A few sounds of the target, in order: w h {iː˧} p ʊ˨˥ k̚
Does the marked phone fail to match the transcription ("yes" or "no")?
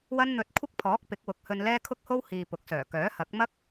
no